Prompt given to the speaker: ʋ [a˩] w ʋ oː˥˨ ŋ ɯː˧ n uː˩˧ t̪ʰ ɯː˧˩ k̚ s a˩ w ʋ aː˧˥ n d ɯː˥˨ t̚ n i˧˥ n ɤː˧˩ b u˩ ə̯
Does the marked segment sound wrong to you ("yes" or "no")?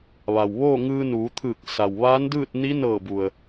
no